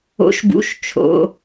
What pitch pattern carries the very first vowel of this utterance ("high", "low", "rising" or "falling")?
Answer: rising